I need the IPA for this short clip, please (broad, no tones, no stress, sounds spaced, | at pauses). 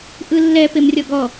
ʔ ɯ lː ɛ p e m rʲ ɔ ɡ ɔ